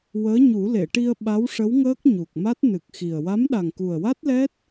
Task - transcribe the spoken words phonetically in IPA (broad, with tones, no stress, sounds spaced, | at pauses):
w əː˧˥ ɲ u˨˩˦ l e˨˩˨ ʈ i˧ ə̯ ɓ a˧˥ w ʂ ə˧˥ w ŋ əː˦˥ k̚ ɲ u˨˩ k̚ m a˦˥ t̚ n ɨ˨˩ k̚ x i˨˩ ə̯ w a˧˥ m ɗ a˨˩ ŋ k u˨˩ ə̯ w a˦˥ t̚ l ɛ˦˥ t̚